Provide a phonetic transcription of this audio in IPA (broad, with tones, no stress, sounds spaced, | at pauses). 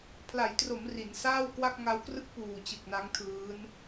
pʰ l a˩˦ j t r o˩˦ m r i˩˦ n s aː˥˩ w k w a˥˩ k̚ ŋ a˦˥ w k r ɯ˥˩ k̚ p uː˨˩ t͡ɕ ɯ˨˩ k̚ n a˦˥ ŋ tʰ ɯː˦˥ n